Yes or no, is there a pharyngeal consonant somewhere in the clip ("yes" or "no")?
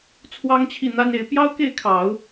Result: no